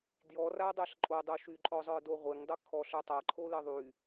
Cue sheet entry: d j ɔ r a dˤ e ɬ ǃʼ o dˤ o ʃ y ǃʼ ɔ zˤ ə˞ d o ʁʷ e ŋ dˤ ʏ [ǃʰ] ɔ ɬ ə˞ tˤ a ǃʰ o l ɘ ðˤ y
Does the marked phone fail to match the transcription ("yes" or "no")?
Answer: yes